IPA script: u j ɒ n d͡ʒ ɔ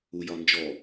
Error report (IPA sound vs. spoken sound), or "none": none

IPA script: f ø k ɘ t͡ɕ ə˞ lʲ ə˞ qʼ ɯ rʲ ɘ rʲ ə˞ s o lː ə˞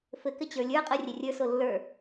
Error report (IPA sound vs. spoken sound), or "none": ø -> ɘ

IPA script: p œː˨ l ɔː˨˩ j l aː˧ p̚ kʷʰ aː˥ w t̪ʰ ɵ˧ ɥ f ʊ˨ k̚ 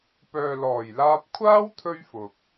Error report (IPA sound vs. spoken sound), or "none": none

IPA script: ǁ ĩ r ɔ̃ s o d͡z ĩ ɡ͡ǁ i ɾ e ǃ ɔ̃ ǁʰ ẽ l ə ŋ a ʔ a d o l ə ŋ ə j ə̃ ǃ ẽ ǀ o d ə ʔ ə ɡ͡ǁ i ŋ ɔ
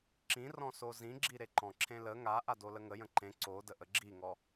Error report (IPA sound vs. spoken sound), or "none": d͡z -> z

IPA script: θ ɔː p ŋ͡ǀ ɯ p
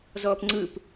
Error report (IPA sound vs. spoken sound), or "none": θ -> z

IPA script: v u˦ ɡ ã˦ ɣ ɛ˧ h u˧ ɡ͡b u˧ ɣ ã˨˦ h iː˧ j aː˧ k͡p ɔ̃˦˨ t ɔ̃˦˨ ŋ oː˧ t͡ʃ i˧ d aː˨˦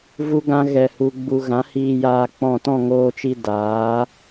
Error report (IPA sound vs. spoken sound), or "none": none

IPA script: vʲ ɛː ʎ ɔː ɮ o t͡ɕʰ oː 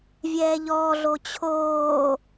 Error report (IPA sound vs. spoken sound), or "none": none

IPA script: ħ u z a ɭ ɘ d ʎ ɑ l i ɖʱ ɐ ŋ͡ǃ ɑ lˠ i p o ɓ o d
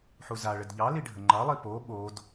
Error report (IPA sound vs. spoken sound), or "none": ɐ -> ə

